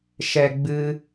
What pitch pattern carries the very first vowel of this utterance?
low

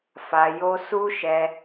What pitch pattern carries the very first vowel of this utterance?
low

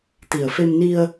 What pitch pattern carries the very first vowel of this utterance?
low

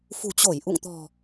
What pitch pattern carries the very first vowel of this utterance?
low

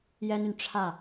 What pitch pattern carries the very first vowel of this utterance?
high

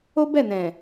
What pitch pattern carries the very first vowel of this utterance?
high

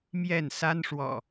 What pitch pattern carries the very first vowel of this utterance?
falling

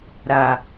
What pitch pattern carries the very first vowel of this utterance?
low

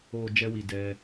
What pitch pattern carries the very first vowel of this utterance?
low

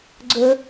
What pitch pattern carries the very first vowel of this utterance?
low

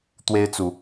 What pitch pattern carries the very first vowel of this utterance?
high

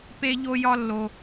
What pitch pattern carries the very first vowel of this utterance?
high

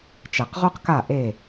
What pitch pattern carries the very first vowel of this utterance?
low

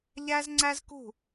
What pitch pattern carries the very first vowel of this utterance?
high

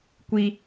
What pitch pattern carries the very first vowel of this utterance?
high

